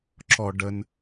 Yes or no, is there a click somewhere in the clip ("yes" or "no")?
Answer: yes